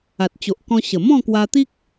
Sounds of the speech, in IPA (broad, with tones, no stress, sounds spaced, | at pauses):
a˨ t̚ t͡ɕ o˨ ʔ k ɔ̃˧ ɕ ə˨˩ m ɔ̃˥˧ k w a˧ t̪ i˦ k̚